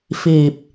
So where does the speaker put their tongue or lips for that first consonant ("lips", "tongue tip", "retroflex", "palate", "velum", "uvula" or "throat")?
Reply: lips